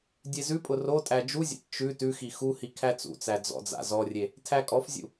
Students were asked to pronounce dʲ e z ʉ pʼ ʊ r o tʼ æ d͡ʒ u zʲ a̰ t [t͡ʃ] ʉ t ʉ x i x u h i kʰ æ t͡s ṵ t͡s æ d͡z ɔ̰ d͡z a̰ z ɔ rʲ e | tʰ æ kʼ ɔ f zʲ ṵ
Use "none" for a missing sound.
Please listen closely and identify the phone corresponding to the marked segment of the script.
t͡ʃ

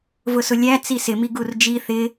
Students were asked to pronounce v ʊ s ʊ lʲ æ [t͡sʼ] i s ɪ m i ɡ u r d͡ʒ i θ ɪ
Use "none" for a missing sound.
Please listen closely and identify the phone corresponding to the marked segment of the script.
t͡s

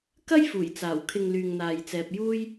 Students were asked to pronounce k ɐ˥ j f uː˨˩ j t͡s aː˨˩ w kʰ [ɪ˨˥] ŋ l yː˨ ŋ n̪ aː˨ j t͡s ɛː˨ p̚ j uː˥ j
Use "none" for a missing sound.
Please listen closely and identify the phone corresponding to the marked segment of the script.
ɪ˧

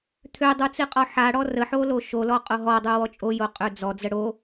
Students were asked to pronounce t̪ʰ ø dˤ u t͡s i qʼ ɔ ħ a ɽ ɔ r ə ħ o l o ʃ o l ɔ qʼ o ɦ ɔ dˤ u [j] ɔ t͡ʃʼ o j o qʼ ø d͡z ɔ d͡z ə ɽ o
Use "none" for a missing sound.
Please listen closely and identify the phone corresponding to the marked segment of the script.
w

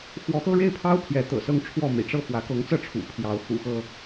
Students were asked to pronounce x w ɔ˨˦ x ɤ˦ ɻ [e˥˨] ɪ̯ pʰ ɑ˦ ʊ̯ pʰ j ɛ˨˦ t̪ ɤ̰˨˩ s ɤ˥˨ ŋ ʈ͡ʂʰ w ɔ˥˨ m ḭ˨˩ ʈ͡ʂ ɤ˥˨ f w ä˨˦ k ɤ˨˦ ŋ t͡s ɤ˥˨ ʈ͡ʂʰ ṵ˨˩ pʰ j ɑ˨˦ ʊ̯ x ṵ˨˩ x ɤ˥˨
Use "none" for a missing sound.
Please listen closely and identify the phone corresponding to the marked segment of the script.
e˥˨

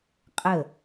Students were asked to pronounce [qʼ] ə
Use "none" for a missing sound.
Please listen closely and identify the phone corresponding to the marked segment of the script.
qʼ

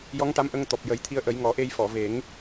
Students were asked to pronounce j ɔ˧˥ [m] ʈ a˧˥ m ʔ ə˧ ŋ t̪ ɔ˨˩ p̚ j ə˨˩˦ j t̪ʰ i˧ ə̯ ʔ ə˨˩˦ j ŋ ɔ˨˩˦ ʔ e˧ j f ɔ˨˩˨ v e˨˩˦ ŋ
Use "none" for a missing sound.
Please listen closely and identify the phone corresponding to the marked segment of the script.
ŋ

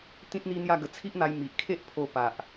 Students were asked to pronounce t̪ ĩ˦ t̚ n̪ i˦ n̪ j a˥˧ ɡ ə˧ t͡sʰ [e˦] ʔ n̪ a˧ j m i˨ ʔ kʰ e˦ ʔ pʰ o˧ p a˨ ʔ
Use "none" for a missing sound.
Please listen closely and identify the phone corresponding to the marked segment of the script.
i˦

